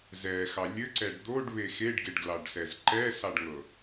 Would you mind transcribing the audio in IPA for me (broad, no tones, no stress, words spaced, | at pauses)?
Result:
zɛxɑ lʲɘǀɛɖ d̪oɖβe xeɖɡeɖɡlɑɖsɛz ǃɛsɑɖŋɤ